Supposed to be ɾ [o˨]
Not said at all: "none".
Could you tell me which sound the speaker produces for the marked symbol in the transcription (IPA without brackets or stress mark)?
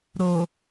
o˨